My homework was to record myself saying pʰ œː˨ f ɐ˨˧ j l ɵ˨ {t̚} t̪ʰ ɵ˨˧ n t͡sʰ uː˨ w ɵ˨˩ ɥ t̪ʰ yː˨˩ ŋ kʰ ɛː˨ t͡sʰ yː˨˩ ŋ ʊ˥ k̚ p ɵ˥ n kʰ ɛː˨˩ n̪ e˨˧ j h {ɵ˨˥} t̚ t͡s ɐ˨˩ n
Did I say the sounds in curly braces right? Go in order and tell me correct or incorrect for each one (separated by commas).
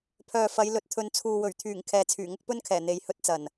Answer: correct, incorrect